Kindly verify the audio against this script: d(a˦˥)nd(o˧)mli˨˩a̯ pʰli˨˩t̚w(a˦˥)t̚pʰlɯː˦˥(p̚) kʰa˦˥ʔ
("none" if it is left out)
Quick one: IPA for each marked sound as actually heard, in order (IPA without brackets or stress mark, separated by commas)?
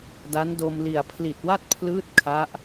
a˦˥, o˧, a˥˩, t̚